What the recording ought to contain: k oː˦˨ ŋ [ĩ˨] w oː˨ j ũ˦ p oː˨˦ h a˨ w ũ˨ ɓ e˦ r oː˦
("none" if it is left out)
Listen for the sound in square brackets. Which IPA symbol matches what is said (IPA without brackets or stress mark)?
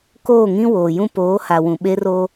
ĩ˦